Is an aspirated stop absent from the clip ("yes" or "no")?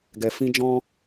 yes